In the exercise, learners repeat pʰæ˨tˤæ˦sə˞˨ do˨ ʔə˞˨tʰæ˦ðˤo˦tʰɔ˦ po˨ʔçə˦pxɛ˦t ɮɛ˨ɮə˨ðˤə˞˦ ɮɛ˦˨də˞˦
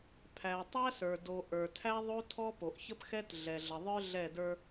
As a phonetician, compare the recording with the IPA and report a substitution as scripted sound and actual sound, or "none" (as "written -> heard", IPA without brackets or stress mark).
none